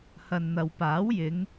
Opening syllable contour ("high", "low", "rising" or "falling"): low